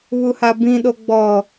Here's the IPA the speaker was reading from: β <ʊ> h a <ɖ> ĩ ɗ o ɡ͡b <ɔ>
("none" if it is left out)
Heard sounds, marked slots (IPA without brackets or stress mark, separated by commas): u, b, ɔ